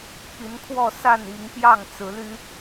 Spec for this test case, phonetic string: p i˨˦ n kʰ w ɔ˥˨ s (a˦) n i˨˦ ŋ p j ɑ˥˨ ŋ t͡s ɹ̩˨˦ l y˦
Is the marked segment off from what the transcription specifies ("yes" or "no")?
yes